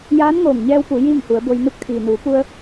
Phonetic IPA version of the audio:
j aː˧˥ n ŋ oː˧˩ ŋ ɲ ɛː˧ w p u˩˧ j iː˥˨ ŋ h u˩˧ ə̯ b o˧ j n u˧˥ k̚ t̪ʰ iː˩ n uː˩˧ p u˧ ə̯

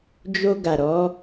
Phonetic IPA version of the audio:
d͡ʒ o˧ ɡ a˨ ɾ ɔ˨˦

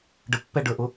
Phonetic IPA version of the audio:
ɖ ə pː ɛ ɖ ə˞ ʔ ʊ

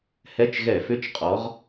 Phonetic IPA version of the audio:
h ɛ˧˥˧ t͡ʃ ɣ ɛ˧˩˧ f ʏ˧˥˧ t͡ʃ qʼ ɔ˨˦ ʁ

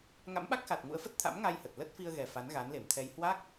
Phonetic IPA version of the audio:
ŋ a̰˧˥ m ɓ a˦˥ k̚ x a˨˩ t̚ ŋ ṵ˧˥ ə̯ f ə˦˥ t̚ t̪ʰ a̰˧˥ m ŋ a˧ j h ə˨˩ t̚ l ə˦˥ t̚ f i˧ ə̯ ɣ ɛ˨˩ f a˨˦ n ɣ a˨˦ n l e˧˩ m t̪ʰ ɛ˧ j h w a˦˥ k̚

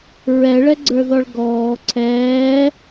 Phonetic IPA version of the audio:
ɹ ɛ ɭ ɛ ɡ͡ǀ ə˞ ð ɔ ɭ ɡ ɔː ǀʰ ɛː

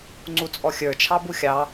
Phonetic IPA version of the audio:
ŋ͡ǀ u t͡sʼ ɔ xʲ ə˞ t͡ʃʰ ɑ b u xʲ ɑ

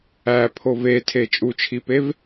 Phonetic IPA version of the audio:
æ pʰ o v e tʰ e t͡ʃʼ u t͡ʃʰ i p e v

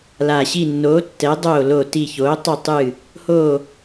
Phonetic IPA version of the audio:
l a˨˩ ɕ i˦˨ nː oː˨˥ tː ɛ˨˥ dˤ oː˦˨ l o˦˨ t i˦˨ ç oː˨˥ tˤ o˦˨ tˤ ɨː˦˨ | h oː˦˨

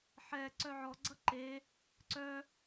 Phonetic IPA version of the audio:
ħ ɛ ǀ œ ʕ ɔ ɡ͡ǀ ʌ ǃ e | ǀ œ

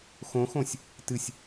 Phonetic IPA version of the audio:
x õ x õ sʲ | t ɨ sʲ

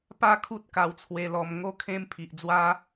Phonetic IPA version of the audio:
p a˥˧ kʰ u˦ t̚ k a˧ w t͡sʰ w e˧ l ɔ˧ m ŋ o˦ kʰ ẽ˦ m pʰ i˨ ʔ d͡z w a˦

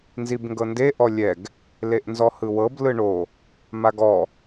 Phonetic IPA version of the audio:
n z i b ŋ ɡ ɤ n d e ʔ ɔ lʲ ɛ ɡ | l e ʔ n z ɔ h ɯ w ɤ b l ɯ ɳ o | m a ɡ ɔ

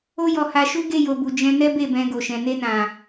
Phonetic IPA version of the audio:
o˦ j ɔ˧ h a˧ ʃ u˦ ɡ e˦˨ j o˨ b u˨ d͡ʒ ɛ̃˧ n ɛ˦ b e˦˨ b ɛ̃˧ ɡ o˨ ʃ ɛ̃˨ n e˧ n ã˨

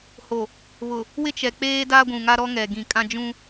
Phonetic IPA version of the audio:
h o˨ | β ʊ˨ | w ɪ˦ t͡ʃ ɛ˨ k͡p eː˦ d aː˦ ɡʷ ũ˨ ŋ a˦ ɾ ɔ˦ ŋ ɛ˨ ɡ ĩ˨ kʼ ã˦ d͡ʒ ũ˦

